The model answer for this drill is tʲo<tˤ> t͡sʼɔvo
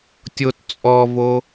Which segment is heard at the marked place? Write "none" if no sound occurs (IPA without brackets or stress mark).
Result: t